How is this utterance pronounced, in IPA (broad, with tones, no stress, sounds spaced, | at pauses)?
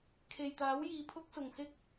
kʰ e˨ j t̪ aː˨˥ w j iː˨˧ pʰ ʊ˥ k̚ s ʊ˨ ŋ s ɪ˥ k̚